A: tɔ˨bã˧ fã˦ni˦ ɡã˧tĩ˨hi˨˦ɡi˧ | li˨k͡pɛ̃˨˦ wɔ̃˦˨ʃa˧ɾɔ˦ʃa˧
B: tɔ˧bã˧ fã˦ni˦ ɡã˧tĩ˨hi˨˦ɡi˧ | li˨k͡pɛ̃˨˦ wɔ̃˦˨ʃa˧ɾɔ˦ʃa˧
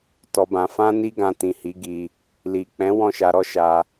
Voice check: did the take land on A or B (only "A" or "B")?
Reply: B